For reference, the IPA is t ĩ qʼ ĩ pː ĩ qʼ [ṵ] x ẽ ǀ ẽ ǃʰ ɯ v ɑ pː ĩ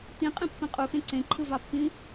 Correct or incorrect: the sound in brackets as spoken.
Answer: incorrect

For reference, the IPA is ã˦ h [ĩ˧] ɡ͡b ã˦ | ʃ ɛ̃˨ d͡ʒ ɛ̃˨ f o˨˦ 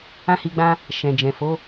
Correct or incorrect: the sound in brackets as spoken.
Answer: incorrect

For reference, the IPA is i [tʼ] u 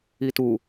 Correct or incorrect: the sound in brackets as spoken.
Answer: incorrect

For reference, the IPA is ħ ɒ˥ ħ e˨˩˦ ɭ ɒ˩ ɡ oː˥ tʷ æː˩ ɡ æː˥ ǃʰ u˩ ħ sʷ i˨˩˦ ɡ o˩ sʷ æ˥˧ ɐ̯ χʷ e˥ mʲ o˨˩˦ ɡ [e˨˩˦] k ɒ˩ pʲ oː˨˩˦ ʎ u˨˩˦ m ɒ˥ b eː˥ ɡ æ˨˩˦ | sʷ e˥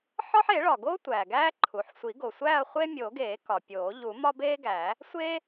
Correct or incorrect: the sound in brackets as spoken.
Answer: incorrect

